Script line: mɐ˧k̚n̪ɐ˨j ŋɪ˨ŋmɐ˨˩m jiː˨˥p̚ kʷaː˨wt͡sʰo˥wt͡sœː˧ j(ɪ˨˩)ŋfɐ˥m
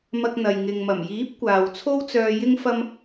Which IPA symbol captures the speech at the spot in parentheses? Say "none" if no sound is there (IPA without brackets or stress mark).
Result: ɪ˥